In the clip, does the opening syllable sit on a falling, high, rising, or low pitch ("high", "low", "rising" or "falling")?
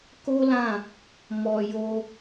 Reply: high